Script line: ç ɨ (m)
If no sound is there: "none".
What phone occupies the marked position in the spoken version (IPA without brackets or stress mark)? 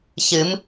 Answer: m